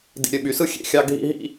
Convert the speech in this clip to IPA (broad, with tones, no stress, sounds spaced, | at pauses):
d ḭ˨ ɾʲ ø˨ ɓ y˨ s ɯ˦ xʲ ḛ˨ xʲ ɑ˦ ɡʱ ḭ˦ ɦ ḭ˦